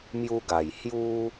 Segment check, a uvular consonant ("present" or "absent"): absent